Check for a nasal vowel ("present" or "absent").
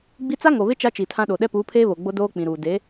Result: present